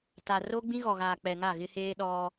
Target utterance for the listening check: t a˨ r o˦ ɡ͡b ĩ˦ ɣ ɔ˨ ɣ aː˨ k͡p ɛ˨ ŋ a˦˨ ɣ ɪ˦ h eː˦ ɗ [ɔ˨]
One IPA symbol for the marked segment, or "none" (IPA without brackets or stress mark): ɔ˦